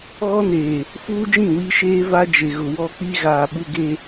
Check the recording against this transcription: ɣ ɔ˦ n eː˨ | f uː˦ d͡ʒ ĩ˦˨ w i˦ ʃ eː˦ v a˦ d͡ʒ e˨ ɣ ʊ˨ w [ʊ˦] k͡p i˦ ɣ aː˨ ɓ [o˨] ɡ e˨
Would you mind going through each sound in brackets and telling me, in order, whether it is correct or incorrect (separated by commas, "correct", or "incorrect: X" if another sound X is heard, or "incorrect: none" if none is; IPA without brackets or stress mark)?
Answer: incorrect: ɔ˦, incorrect: u˨